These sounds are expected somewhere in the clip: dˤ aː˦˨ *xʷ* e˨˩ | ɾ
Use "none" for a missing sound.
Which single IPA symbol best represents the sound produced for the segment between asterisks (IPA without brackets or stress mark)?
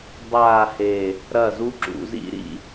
h